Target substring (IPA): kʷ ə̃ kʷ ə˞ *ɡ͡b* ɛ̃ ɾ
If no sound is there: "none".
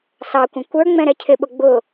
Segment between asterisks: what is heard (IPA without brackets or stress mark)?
ŋ͡m